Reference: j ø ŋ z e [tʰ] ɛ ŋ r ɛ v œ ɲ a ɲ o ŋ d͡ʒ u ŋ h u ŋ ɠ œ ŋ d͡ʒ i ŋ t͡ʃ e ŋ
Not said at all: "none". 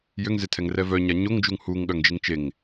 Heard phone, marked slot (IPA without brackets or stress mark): tʰ